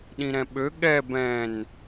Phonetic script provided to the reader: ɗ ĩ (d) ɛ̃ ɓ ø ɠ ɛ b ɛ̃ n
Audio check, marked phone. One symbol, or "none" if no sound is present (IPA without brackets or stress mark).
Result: ɾ